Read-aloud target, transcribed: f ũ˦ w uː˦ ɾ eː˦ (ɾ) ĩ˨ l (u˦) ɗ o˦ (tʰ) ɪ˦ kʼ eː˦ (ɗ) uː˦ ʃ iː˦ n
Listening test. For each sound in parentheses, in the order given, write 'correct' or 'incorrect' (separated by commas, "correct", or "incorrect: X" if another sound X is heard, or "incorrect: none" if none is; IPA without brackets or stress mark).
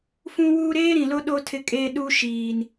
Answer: correct, incorrect: o˦, correct, correct